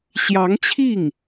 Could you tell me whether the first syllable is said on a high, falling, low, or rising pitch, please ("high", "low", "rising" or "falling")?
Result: rising